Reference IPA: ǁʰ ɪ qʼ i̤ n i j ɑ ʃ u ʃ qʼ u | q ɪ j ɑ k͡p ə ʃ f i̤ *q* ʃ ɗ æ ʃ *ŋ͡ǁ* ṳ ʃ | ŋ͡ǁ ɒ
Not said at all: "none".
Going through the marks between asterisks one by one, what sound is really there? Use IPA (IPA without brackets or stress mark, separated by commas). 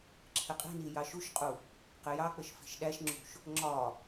none, ŋ͡ǁ